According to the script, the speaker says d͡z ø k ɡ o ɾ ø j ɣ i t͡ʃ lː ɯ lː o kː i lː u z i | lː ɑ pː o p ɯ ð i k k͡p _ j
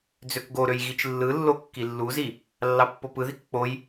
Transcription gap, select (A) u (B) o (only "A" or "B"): B